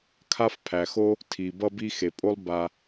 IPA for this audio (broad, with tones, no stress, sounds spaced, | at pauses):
kʰ a˥ f pʰ æ˩ x o˥ | tʰ i˩ b ʌ˧ b i˧ x e˩ pʼ o˥ lˠ b a˧